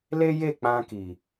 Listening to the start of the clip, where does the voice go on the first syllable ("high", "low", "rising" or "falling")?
high